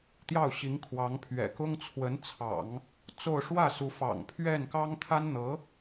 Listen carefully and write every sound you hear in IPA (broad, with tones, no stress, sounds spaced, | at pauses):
t̪ j ɑ˥˩ ʊ̯ ɕ i˧˥ ŋ kʰ w ɑ˧˥ ŋ pʰ ɥ ɛ̰˨˩ k ʊ˥ ŋ t͡sʰ w ə˧˥ n t͡sʰ ɑ̰˨˩˦ ŋ | t͡s o˥˧ ʊ̯ ʂ w ä˥˩ s u˧˥ f ɑ̰˨˩ ŋ pʰ ɥ ɛ˥˩ n k ɑ˥ ŋ t̪ʰ a˥ n n̪ ɤ˧˥